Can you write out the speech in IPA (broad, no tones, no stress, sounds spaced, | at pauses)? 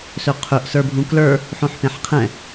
s ɵ qʰ ɵ ʔ s ə˞ bʱ ũ k l ə˞ | ħ õ ħ p ẽ ħ qʰ ɛ̃